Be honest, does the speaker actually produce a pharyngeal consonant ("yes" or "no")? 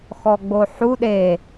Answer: yes